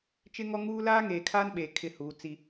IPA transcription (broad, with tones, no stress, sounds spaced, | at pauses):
t͡ʃ ɪ˦ ŋ ɔ˦ ŋ uː˦ l aː˦ ŋ eː˨ kʰ aː˦ n ɓ eː˨ kʰ ɪ˦ h uː˨˦ t͡s i˦